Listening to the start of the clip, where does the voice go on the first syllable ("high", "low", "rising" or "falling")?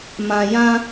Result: high